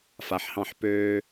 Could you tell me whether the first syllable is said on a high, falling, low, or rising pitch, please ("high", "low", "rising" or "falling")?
low